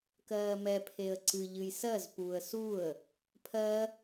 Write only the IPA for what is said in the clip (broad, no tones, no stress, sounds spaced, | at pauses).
k ɜː m ɛ pʰ e ə̯ ǀ ɨ ʎ ɨ j s ɜ z p uː ə̯ s u ə̯ | pʰ ɜ